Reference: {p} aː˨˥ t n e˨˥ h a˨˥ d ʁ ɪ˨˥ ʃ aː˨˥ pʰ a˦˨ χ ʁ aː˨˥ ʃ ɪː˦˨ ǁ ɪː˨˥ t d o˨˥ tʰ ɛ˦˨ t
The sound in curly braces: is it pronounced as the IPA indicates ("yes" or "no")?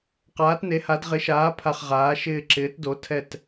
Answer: no